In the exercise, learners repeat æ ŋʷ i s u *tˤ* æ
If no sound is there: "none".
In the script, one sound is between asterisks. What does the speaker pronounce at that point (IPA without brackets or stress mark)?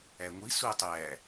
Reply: tˤ